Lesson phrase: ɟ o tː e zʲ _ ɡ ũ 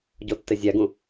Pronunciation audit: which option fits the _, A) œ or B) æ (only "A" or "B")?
B